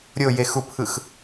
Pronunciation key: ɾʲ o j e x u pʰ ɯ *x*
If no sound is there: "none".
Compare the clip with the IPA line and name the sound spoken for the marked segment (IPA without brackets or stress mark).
x